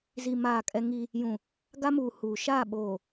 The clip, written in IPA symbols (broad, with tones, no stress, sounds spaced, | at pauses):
z i˨ m aː˦˨ kʼ ɛ˦ ŋ i˦ | j ũ˨ | ɡ a˦ m uː˨ h uː˨ ʃ aː˦˨ ɓ oː˨